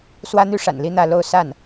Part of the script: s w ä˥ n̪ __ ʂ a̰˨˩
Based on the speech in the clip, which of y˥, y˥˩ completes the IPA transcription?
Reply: y˥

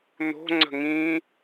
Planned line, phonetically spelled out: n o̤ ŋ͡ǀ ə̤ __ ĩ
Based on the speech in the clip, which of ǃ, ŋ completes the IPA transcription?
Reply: ŋ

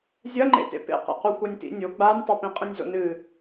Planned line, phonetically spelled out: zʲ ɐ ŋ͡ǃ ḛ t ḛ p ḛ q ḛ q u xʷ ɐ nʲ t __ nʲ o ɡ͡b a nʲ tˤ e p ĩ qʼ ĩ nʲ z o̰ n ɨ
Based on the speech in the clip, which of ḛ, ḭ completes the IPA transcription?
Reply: ḭ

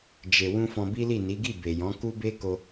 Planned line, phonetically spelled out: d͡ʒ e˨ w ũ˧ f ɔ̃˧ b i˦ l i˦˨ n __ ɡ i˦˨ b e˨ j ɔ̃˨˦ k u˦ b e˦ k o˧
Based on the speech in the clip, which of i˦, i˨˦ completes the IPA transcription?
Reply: i˨˦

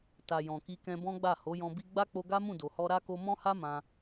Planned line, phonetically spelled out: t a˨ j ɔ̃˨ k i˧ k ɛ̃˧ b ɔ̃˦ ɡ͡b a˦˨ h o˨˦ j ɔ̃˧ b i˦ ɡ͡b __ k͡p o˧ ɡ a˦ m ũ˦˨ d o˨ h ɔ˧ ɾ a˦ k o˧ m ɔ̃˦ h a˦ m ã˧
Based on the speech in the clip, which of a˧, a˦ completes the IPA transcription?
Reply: a˦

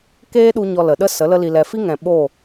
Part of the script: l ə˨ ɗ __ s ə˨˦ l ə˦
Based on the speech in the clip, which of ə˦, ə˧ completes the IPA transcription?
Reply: ə˦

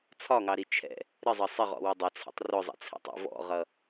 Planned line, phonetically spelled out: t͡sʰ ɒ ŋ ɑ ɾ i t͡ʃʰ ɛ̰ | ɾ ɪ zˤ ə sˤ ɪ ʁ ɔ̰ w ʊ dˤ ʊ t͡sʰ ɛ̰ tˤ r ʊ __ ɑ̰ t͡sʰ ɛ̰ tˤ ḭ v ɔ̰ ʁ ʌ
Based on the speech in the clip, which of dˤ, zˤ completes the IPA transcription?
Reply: zˤ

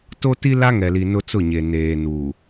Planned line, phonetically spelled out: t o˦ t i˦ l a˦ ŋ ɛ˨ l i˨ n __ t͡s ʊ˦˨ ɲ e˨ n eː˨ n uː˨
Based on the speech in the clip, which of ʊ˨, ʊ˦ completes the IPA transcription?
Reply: ʊ˦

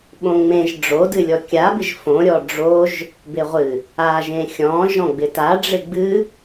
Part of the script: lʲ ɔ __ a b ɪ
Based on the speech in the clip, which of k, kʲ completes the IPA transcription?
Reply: kʲ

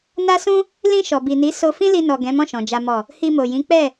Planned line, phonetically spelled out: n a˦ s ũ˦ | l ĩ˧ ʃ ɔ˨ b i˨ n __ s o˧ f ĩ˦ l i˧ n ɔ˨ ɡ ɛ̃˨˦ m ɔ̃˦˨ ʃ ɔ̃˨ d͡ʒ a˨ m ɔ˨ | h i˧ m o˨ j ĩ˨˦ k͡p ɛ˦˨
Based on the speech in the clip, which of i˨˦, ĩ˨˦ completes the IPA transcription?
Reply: i˨˦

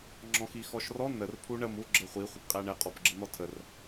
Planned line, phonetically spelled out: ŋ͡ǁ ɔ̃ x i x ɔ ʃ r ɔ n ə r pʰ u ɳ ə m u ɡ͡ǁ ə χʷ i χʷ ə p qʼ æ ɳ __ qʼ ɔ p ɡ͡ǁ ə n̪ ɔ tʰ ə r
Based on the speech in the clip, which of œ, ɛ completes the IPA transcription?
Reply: ɛ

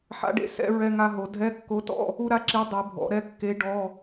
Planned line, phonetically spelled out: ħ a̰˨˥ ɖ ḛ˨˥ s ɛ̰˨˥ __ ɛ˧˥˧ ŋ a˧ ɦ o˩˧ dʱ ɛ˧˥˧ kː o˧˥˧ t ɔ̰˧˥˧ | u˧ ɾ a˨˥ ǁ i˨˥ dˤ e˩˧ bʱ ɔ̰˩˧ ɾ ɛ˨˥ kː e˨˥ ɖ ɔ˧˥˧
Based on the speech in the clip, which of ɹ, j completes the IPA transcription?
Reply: ɹ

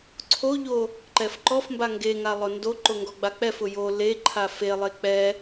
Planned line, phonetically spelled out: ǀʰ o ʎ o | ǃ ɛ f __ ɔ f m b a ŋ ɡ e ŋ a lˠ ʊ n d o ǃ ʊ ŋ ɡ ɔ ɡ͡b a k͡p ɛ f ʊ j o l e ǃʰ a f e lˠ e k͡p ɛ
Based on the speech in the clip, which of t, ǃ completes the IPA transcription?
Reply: ǃ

